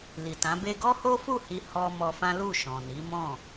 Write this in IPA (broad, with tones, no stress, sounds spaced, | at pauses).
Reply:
l i˨ t ã˨˦ b e˦ ɡ ɔ˦ h o˦ f u˦˨ h i˧ h ɔ˧ m ɔ˧ f ã˦ l u˦˨ ʃ ɔ̃˨ n i˨˦ m ɔ̃˦˨